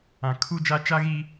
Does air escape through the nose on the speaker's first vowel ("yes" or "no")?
yes